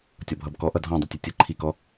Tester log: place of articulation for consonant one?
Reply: alveolar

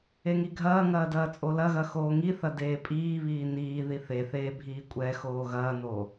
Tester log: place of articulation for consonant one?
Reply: velar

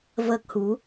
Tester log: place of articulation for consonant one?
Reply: labial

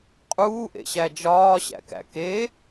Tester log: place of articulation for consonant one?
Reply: uvular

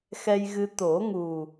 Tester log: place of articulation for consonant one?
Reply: velar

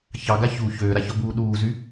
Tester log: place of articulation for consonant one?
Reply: palatal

